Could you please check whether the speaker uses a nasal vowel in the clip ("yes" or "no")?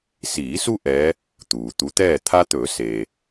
no